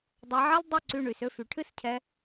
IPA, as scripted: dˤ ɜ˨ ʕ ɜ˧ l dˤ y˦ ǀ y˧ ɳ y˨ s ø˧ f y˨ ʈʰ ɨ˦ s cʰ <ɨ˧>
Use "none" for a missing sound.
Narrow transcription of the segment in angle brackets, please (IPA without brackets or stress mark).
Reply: ɛ˧